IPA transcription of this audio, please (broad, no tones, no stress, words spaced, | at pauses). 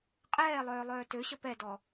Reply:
qʼɛːlˠœː lˠœːtøɕə pɛdɔ